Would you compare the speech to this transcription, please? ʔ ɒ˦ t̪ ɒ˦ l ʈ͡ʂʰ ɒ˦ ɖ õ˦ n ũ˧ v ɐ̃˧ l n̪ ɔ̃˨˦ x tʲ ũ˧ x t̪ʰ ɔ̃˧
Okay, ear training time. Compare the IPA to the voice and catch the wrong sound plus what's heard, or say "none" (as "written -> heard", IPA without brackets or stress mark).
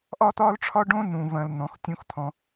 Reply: none